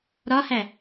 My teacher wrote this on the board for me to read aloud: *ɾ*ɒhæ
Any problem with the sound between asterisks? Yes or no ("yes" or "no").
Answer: no